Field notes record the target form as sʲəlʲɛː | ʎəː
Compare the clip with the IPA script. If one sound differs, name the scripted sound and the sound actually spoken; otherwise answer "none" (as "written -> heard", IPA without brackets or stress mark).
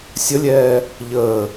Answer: none